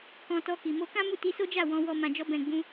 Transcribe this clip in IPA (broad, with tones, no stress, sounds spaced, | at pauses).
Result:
k ɔ̃˧ t ɔ˧ k i˨ m o˧ k ã˦ m u˦˨ t i˧ s o˦ d͡ʒ a˦˨ w ɔ̃˧ w ɔ˧ m ã˨ d͡ʒ ɔ˧ b ɛ̃˨ ɡ͡b ũ˧